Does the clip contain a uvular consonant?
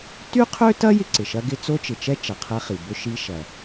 yes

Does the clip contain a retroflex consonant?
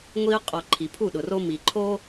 no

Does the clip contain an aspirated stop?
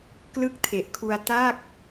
yes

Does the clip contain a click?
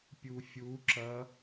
yes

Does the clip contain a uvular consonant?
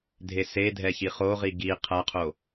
yes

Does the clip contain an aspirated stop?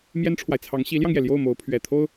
yes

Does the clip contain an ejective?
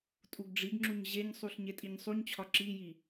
yes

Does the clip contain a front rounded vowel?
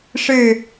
no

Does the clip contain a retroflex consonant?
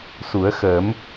no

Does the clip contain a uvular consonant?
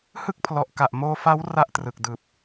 no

